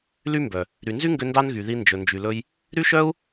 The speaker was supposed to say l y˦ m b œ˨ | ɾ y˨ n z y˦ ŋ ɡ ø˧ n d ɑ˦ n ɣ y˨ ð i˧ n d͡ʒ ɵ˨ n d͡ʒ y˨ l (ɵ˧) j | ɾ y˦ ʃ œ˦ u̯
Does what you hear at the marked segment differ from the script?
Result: no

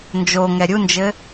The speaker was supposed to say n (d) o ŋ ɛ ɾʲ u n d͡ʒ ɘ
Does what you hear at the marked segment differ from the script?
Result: yes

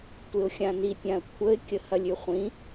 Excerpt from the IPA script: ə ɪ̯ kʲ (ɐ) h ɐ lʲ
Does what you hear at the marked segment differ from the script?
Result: yes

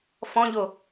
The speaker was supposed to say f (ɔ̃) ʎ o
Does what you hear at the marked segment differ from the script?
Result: no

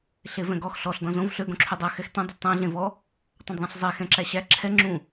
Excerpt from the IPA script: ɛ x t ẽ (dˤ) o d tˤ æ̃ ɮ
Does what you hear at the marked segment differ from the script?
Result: no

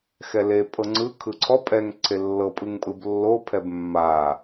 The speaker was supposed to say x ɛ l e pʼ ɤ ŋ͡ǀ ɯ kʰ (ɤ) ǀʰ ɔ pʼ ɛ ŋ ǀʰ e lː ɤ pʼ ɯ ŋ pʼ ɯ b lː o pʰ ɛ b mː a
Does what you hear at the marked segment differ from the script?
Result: yes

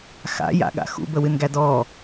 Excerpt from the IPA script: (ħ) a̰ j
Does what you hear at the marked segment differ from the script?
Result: yes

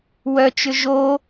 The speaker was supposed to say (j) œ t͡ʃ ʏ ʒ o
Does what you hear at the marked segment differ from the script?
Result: yes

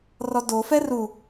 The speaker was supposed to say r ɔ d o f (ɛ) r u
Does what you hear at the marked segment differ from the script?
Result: no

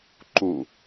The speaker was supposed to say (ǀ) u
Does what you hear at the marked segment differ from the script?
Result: yes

